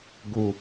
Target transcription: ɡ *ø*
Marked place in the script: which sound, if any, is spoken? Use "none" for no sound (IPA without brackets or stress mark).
u